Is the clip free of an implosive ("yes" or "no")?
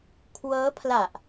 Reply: yes